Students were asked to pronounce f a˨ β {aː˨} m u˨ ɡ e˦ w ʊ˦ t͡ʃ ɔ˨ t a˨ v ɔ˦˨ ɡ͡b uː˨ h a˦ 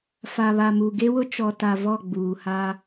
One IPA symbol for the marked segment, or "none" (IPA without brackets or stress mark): a˨